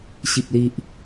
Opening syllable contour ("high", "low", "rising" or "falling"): low